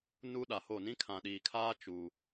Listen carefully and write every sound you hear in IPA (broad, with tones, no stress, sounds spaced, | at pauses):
n u˦ ɗ a˨ h o˦˨ n ĩ˦ kʰ ã˨ ɗ iː˨ kʰ aː˦ t͡ʃ u˨